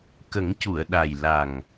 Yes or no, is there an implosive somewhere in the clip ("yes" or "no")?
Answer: yes